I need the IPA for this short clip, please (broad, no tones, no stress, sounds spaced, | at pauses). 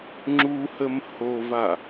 ŋ͡ǁ u h ə m h o v a